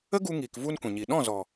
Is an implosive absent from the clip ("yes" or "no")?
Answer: no